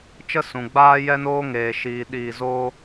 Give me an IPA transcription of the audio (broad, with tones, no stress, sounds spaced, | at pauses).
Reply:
t͡ʃ ə˦ s ũ˨ ɡ͡b aː˦ j ɛ˦ n oː˦ ŋ eː˨ ʃ iː˨ ɗ iː˧ z oː˦